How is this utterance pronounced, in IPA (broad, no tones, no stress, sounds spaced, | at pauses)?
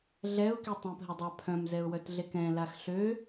ɮ ɛ ʊ̯ k i tˤ ĩ p ɦ ə dˤ a pʰ œ̃ m z ɛ ʊ̯ w œ t ɮ e k ɛ̃ l a x ɬ ø